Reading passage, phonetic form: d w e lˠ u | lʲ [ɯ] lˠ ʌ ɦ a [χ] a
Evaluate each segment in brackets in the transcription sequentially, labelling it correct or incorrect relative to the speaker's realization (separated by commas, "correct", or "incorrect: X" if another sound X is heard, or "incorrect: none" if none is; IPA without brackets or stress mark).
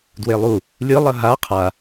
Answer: correct, incorrect: qʰ